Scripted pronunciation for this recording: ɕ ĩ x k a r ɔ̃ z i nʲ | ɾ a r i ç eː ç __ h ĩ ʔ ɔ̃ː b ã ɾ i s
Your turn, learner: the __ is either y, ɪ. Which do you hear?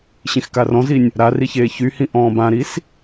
y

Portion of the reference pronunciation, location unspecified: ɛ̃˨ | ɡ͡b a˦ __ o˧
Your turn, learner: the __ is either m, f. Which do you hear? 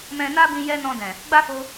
f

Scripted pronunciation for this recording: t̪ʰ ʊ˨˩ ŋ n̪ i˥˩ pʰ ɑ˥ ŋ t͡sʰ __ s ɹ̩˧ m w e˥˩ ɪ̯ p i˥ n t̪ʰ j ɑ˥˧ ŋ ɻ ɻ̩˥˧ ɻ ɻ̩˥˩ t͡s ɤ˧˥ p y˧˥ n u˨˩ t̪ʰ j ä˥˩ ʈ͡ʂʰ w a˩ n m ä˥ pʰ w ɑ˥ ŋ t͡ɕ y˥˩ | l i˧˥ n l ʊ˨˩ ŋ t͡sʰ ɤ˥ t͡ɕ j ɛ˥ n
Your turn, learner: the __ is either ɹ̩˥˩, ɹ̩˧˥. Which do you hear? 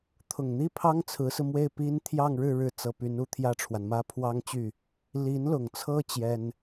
ɹ̩˧˥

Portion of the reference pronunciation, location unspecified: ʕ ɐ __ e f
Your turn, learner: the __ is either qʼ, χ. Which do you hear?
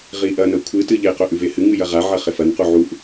χ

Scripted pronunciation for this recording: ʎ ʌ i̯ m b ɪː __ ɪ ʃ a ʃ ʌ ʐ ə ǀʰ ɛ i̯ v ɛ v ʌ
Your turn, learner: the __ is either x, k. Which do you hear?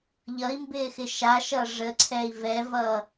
x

